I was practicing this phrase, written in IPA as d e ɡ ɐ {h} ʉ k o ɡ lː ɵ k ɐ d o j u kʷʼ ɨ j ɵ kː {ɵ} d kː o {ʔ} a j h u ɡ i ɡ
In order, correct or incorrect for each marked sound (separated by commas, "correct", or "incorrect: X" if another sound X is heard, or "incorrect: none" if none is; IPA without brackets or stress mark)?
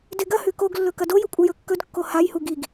correct, correct, incorrect: h